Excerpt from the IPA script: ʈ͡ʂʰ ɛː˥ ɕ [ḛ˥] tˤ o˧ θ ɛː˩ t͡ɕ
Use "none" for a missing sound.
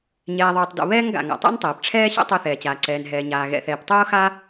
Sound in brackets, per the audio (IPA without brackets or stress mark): ɛ̰˥